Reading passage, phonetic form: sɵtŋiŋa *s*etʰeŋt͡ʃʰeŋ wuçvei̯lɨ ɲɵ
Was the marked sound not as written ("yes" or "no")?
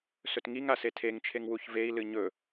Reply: no